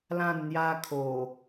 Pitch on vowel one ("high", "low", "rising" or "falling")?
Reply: falling